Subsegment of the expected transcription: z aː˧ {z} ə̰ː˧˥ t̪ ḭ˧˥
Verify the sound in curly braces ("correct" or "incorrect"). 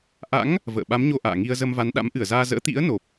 correct